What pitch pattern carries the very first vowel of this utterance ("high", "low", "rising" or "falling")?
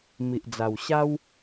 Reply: low